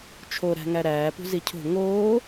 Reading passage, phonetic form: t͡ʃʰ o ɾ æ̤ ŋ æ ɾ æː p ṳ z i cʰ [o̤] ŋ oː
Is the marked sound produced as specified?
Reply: yes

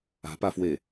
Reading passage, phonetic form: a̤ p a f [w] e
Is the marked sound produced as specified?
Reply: yes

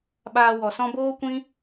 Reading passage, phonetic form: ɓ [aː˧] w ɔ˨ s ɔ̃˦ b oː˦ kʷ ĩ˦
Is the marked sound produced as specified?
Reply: yes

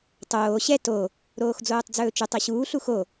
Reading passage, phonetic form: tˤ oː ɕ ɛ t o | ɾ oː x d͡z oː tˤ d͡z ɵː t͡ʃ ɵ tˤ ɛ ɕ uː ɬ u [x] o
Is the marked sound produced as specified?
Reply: yes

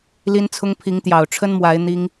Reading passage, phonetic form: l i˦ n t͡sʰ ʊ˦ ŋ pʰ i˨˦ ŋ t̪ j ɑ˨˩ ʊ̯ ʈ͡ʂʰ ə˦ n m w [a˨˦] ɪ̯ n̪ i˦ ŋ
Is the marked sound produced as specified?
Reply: yes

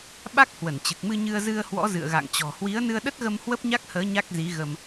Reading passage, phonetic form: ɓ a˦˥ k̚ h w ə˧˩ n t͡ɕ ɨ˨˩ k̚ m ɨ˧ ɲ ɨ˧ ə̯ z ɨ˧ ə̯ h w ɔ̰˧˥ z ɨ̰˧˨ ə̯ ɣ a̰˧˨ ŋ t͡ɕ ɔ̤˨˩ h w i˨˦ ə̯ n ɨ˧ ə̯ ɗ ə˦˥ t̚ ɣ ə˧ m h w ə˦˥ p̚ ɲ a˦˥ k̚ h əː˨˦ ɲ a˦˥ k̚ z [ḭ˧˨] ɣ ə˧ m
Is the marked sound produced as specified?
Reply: no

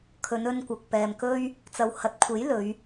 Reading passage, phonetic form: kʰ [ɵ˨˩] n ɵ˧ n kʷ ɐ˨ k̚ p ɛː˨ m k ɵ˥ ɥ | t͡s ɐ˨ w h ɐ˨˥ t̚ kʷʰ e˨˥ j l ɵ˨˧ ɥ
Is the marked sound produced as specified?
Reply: no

